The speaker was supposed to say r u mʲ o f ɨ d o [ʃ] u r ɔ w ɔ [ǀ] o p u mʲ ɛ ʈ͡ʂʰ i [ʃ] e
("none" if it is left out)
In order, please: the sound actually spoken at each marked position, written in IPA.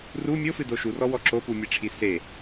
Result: ʃ, ǁ, s

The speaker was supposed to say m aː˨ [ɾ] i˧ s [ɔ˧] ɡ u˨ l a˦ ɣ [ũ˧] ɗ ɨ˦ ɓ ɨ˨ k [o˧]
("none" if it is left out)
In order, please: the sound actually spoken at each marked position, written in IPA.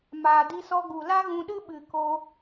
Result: d, ɔ˧, ũ˧, o˧

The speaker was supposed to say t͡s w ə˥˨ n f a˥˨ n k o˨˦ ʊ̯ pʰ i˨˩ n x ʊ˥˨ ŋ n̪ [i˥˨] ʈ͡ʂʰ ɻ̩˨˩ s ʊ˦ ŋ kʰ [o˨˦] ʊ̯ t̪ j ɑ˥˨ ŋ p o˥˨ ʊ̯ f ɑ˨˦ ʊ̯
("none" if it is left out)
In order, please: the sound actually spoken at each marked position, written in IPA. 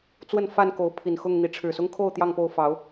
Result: i˨˦, o˥˨

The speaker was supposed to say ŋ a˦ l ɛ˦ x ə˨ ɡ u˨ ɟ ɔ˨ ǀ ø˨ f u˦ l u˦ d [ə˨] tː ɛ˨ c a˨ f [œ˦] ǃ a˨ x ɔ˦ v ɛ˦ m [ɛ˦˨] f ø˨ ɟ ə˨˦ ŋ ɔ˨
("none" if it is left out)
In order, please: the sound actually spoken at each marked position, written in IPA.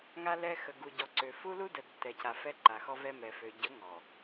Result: ə˨, ɛ˦, ɛ˨

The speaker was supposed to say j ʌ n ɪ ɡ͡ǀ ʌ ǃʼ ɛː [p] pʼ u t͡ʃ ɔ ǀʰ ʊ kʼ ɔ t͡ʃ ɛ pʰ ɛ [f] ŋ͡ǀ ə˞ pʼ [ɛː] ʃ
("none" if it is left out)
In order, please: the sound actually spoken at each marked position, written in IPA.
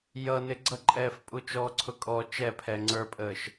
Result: f, none, əː

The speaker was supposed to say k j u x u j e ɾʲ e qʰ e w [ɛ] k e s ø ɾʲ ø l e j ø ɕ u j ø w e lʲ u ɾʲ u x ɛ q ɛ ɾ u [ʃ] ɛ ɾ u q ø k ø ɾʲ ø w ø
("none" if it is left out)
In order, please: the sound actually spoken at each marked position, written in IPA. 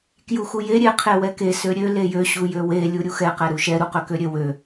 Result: ɛ, ʃ

